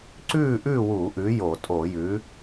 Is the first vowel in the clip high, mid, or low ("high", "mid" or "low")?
high